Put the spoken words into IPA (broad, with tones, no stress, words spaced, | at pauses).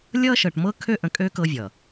lʲʌ˦ʃɤ˨ʈmɤ˦kʰø˦ ʔə̃˨kʼø˦ kɤ˦vʲʌ˨